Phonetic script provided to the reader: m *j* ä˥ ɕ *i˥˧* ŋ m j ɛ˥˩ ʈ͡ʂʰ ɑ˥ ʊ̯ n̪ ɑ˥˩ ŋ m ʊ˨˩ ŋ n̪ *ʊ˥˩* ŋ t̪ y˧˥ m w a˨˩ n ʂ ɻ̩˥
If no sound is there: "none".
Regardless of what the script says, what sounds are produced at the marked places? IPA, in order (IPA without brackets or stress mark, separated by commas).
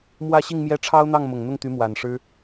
w, i˥˧, ʊ˥˩